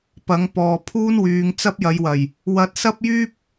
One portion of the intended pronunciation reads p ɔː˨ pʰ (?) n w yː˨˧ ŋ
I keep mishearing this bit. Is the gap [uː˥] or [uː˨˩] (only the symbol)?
uː˥